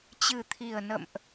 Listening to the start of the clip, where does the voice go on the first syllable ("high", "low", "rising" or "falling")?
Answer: low